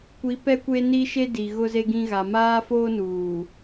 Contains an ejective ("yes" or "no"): no